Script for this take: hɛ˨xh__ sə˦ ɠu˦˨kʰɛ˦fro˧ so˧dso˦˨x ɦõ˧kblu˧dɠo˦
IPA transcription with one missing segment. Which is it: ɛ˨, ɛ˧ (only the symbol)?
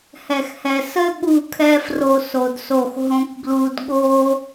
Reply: ɛ˨